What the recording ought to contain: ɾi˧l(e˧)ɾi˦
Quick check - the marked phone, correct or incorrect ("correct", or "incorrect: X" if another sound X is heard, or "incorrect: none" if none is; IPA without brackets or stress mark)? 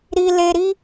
correct